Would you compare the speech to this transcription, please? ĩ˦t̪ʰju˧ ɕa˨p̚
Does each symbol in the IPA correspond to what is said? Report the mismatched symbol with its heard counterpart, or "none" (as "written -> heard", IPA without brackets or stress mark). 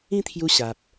none